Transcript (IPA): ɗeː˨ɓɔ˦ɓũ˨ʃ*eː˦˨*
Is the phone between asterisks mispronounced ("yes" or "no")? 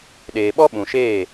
no